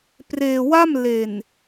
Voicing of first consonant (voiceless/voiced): voiceless